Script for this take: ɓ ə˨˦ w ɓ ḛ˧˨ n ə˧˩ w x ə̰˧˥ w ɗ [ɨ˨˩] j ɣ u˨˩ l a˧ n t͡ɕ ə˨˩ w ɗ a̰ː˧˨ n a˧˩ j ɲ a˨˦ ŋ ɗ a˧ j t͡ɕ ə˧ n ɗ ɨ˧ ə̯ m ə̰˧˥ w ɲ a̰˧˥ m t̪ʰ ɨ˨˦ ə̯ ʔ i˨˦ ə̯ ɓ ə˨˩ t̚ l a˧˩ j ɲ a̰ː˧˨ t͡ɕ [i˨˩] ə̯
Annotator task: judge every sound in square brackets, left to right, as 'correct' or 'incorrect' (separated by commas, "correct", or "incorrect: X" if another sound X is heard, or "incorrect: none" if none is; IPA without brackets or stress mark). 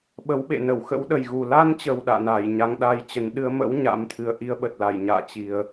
incorrect: ə˨˩, correct